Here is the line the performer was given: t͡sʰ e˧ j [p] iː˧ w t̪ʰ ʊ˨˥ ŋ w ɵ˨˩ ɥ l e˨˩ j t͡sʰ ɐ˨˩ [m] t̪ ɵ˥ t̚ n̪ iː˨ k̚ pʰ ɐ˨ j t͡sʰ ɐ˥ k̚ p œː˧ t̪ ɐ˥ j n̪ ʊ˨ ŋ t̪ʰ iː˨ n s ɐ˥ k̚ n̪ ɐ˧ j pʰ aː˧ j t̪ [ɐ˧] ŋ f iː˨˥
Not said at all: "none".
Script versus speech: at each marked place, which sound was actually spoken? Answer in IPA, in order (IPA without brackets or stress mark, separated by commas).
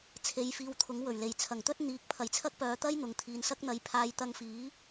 f, ŋ, ɐ˧